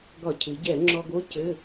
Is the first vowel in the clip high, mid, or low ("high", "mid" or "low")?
low